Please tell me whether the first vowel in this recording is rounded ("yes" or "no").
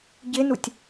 no